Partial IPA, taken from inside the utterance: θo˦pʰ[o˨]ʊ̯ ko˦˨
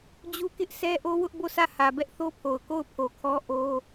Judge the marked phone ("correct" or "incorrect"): correct